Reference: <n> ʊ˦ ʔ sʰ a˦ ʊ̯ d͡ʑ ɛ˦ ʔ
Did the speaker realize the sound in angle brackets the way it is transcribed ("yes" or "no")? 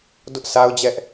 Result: no